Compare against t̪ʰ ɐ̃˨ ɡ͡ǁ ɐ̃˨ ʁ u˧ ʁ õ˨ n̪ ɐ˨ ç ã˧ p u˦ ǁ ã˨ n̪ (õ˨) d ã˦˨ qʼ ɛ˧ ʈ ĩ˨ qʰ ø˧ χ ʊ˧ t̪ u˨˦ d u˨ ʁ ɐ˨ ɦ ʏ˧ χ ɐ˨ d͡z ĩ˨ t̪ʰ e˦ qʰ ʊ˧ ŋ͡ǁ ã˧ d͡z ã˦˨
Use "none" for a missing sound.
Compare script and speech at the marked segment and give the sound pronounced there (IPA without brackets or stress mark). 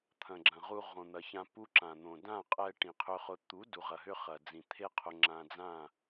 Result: õ˨